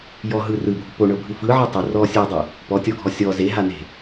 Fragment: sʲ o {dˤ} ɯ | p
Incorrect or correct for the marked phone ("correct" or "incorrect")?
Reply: correct